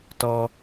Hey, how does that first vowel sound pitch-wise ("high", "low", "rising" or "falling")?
high